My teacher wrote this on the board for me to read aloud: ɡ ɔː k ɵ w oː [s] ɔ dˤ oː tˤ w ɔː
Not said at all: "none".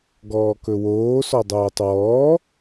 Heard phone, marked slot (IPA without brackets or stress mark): s